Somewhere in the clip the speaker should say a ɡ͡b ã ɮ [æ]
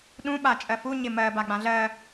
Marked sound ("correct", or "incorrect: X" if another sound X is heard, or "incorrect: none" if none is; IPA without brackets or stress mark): incorrect: ɜ